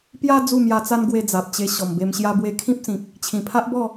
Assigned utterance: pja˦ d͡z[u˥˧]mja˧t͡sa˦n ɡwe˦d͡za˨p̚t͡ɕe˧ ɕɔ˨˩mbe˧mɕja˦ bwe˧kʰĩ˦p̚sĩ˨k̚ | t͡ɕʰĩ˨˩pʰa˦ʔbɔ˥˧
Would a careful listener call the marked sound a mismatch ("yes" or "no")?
no